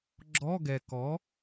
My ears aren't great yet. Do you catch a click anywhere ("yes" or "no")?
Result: yes